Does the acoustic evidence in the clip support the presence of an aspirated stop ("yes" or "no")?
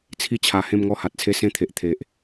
yes